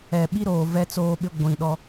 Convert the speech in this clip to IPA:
ɛ˨ ɓ i˦ ɾ oː˨ v ɛ˦ t͡s oː˦ ɓ ɪ˦ ɡʷ ĩ˨ ɗ ɔ˦

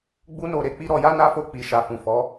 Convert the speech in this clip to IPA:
ɡ͡b u˦ n o˦˨ ɾ e˨˦ k͡p i˦ ɾ ɔ˧ j a˦ n a˦ f o˧ k͡p i˨ ʃ a˨ f ũ˨ f ɔ˨˦

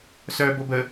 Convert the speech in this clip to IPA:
s œː b o b ə

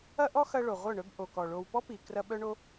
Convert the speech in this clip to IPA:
ɐ˦ ʔ ɔ˦ x ɐ˧ ɭ o˨ ʁʷ œ˦˨ ɳ œ˦ b ʔ o˨ k ɔ˨ ɭ o˧ w p ɔ˦ p i˨ k r ɐ˧ ɓ œ˦ ɳ o˦

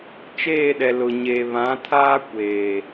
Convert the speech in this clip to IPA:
t͡ʃ eː˦˨ ɗ ɛ˨ l ʊ˨ ɲ e˨ β ã˨˦ tʰ aː˦ kʷ eː˨

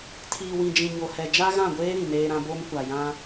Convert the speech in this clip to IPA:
tʰ iː˨ w ĩ˨ d͡ʒ ĩ˨ ɲ o˨ h ɛ˨ d͡ʒ a˦ ɣ ã˦˨ ɡʷ eː˦ ɾ ĩ˨ n eː˦ ɾ ã˦ b o˦ m kʷ a˨ j ã˦

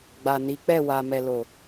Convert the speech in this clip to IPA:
ɡ͡b a˨ n i˨˦ k͡p ɛ˦˨ w a˨ m ɛ˨ l o˨

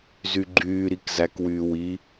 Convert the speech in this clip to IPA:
z y ɡ͡ǃ yː ɾ i k z æ k w yː w i

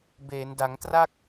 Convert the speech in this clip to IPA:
b eː˩˦ n d a˩˦ ŋ t r a˥˩ k̚

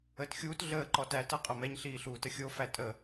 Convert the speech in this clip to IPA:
əː t xʲ uː t ɮ əː ǃ ɔ t æ t ɤ qʼ ɤ m ɛ ɲ ɬ iː ɬ uː t ə xʲ o f æ tʼ ə

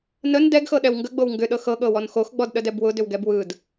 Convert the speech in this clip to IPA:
n ə n d ɛ ɡ x ɤ ɗ ɛ w ŋ ɡ ə ɡ͡b o w ŋ ɡ ʏ ɗ ɤ x ɤ ɠ ɤ w ɔ n x o x ɡ͡b ɔ d ɗ ə d ɛ b w ʊ d ʏ w ɡ ɛ b w ɯ d

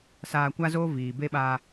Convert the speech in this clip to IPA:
s aː˧ kʷ a˦ z oː˦ v iː˨ b e˦ ɓ a˧

